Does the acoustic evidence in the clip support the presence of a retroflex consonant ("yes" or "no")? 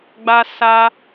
no